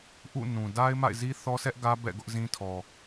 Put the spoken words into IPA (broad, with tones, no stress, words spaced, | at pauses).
ʔṵ˦˨nũ˨ da˦ɪ̯ma̰˦˨ɪ̯zi˦ θɔ˦sɛ˦ʔɡä˦ bɛ̰˦˨ɡʊ˦ʔzĩ˦tʰɔ˨